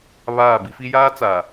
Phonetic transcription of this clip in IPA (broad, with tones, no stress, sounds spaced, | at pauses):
β aː˦˨ b i˦ f i˦ j aː˦ t͡s a˨